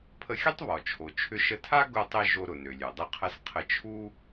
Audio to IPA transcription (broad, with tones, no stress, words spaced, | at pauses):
pʰə˧xʲə˥tˤβɔ˩ t͡ʃʰo˩t͡ʃʰʏ˧ʃə˧tʰa˥ ɡʊ˧tˤɪ˧ ʒo˧ɾʊ˩nø˩lʲø˩ dˤɪ˧qʰɐ˧s qʰə˧t͡ʃʰu˥